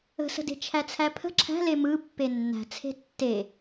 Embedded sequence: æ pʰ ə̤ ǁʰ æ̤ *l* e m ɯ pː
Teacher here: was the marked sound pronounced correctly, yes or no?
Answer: yes